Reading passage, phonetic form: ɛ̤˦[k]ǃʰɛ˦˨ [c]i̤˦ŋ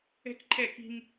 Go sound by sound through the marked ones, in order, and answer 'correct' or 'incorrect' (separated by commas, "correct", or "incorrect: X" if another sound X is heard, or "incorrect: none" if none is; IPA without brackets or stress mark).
correct, incorrect: k